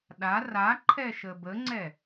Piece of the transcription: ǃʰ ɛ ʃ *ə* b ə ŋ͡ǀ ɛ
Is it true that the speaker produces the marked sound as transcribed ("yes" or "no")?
yes